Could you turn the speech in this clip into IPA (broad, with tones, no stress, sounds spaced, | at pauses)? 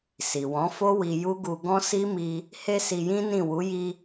s i˨ w ɔ̃˨˦ f o˦ w i˧ j u˦ ɡ u˧ ɡ ɔ̃˦ s i˦ m i˧ | h e˧ s i˧ j ĩ˦ n ĩ˦˨ w u˨˦ j i˧